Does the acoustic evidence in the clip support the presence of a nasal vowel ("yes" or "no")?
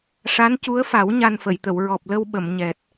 no